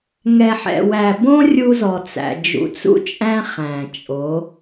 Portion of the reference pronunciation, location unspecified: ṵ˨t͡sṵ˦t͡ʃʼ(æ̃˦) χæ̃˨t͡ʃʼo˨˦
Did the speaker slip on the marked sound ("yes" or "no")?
no